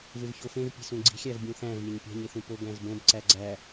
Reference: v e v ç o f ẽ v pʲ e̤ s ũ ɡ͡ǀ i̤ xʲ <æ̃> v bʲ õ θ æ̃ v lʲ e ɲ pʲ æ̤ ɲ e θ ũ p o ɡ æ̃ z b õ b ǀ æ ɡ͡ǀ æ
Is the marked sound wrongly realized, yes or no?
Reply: yes